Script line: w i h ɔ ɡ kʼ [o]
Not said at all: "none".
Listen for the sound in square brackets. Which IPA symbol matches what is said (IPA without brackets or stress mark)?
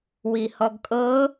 ɤ